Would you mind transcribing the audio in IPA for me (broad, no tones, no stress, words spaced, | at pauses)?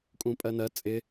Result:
kʼũpʼɜnɜ t͡sʼɪ